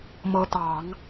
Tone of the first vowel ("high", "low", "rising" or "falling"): rising